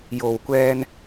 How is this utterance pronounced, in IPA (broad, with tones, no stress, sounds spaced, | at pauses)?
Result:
j o˨ w kʷ ɛː˧ n